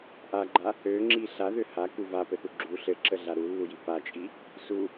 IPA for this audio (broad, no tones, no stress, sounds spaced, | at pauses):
ʔ a ɡ͡ǃ a | ø ŋ͡ǁ i ɬ a ð ø h a k u v a p ɘ θ u ɡ͡ǁ u ɬ ɘ ǁ ə ɮ a ɾ u lː u j i p a t͡ʃʼ i | s u